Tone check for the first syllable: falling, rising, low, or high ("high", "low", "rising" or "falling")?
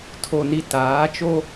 low